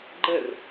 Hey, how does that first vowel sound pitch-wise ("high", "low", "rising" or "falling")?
falling